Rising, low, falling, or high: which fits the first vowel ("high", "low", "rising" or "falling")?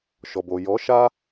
low